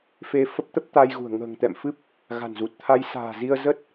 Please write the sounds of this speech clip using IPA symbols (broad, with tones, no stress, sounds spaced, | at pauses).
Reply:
f e˧ f ə˦˥ p̚ t̪ ə˦˥ p̚ t̪ a˧ j ɣ ṳ˨˩ ə̯ ŋ ə̤ː˨˩ ŋ t̪ ɛ̰˧˨ m f ɨ˦˥ p̚ | ɣ a̤˨˩ n z u˨˩ t̚ t̪ʰ a˧ j s a̤ː˨˩ z i˧ ə̯ z ə˦˥ t̚